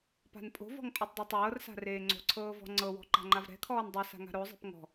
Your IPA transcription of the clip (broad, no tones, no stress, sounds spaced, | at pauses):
p a̤ n pʼ o̤ v ɔ̤ ŋ pʼ o tˤ dˤ ɯ tˤ ɤː r s a̤ r eː ŋ͡ǀ o̤ ǀʰ ɤː v ɔ̤ ŋ͡ǀ ɤ w ɔ̤ ǃ a̤ ŋ͡ǃ a v ɾ ɛ̤ kʰ ɔː n dˤ i s a̤ ŋ a̤ ɾ o zˤ ɛ̤ p ŋ ɔ̤